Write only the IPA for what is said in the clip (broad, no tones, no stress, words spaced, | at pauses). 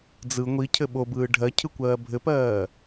d͡zɯ ŋʷi cʰɘɓobɯː ɖʱɜ cʰɯkʷɜːbʱɘpɜː